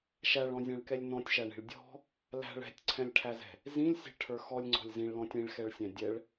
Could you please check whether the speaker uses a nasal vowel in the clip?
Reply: yes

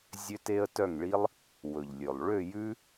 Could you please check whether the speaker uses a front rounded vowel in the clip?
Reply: yes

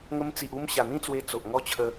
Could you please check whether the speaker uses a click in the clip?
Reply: no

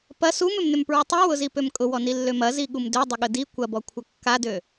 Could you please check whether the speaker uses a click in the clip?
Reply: no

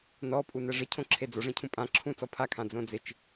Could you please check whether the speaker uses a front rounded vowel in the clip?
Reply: no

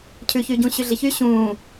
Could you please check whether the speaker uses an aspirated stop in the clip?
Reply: yes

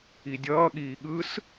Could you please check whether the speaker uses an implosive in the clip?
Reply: yes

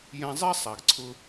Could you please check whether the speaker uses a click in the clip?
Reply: yes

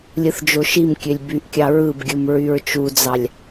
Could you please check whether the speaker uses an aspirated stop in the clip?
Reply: no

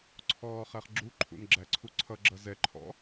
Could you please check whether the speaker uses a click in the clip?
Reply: yes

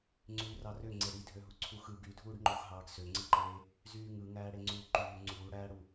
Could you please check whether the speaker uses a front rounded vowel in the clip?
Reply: yes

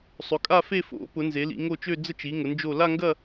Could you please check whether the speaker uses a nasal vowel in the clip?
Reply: no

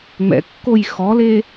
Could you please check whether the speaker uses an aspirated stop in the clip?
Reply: no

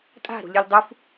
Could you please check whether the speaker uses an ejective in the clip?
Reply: yes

